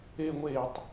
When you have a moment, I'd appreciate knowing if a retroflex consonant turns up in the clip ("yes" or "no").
no